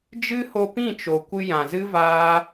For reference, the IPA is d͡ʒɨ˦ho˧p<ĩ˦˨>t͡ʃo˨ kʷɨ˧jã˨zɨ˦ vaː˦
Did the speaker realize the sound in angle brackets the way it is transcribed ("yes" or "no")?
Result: yes